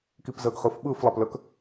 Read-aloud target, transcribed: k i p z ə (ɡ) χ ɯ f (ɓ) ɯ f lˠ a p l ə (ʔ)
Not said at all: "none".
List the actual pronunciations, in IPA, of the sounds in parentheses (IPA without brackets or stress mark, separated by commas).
ɡ, ɓ, k